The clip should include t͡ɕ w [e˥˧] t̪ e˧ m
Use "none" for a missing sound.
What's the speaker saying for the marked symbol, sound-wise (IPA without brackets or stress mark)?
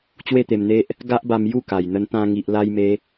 e˥˧